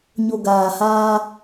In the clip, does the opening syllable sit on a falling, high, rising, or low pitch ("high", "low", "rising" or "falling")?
low